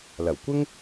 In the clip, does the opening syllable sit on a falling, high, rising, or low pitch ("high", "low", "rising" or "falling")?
low